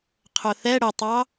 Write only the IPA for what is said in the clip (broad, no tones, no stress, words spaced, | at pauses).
qʰʊθɛ ɽətˤɑ